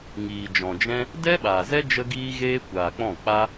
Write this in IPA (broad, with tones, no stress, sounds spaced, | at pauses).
ŋ iː˨ d͡ʒ ɔ̃˨ d͡ʒ ɛ̃˦ | d ɛ˦ ɓ a˨ z ɛ˦ d͡ʒ ə˦ ɡ iː˦ ɣ eː˦ kʷ aː˨ k͡p ɔ̃˦˨ k͡p a˦